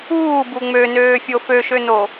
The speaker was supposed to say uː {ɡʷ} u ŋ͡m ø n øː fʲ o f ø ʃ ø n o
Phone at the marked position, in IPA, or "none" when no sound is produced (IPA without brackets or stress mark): b